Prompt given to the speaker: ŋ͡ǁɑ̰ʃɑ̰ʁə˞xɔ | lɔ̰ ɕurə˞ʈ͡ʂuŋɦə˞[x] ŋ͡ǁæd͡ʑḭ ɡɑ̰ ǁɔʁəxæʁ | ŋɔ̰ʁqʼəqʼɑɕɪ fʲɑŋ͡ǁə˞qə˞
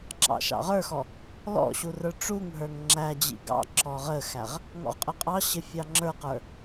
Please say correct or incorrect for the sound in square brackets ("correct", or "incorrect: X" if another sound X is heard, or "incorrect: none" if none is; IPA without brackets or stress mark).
incorrect: ŋ